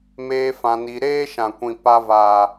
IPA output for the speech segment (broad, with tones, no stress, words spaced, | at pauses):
meː˦fã˧ni˧ ɾeː˦ʃã˨kʷĩ˨ pa˧vaː˨